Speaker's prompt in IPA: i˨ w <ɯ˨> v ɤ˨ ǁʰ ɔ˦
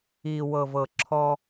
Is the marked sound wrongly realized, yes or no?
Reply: yes